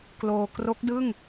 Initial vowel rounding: rounded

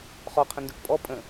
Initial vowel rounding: rounded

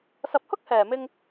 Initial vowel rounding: unrounded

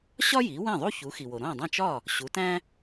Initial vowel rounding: rounded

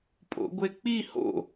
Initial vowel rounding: rounded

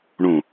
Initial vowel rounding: rounded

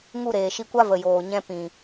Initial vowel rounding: rounded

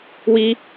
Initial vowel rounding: unrounded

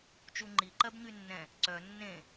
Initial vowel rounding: rounded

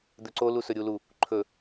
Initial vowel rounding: rounded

